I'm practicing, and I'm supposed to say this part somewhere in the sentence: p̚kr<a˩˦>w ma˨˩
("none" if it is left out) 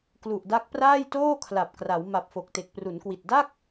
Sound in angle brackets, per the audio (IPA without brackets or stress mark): a˩˦